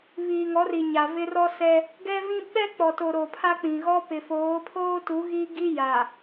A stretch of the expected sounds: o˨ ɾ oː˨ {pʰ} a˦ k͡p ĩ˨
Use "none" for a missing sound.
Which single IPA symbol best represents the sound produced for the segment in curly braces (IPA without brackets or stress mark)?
pʰ